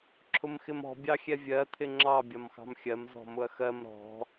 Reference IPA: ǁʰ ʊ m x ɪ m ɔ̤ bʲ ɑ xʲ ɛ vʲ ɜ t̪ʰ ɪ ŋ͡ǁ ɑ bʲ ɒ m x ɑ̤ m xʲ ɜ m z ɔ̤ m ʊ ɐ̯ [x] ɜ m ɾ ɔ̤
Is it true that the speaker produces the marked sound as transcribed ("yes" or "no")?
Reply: yes